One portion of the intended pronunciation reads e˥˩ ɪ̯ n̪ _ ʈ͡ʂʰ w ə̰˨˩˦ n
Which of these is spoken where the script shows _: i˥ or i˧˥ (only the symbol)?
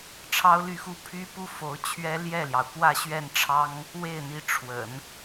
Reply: i˧˥